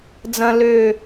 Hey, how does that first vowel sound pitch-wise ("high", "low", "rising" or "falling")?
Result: high